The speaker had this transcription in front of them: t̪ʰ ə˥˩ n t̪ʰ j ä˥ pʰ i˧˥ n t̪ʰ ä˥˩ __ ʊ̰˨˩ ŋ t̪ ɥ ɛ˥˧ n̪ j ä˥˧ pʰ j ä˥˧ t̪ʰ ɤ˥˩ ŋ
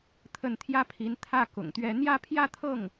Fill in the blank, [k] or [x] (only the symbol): k